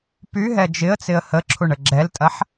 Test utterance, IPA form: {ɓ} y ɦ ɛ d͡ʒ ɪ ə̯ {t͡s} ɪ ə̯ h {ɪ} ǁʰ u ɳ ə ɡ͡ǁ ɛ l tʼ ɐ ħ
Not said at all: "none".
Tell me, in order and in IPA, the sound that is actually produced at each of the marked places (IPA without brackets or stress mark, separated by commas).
p, t͡s, ə